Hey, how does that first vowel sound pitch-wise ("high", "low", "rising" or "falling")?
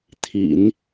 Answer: low